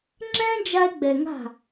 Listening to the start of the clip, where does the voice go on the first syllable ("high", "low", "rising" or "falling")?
high